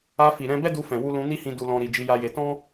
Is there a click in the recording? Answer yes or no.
no